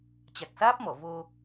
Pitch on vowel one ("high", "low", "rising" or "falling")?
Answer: low